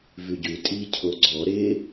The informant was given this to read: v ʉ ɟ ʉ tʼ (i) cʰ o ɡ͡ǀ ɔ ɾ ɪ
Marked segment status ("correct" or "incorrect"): correct